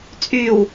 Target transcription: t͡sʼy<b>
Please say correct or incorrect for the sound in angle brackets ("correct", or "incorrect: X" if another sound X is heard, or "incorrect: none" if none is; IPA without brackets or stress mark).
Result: incorrect: w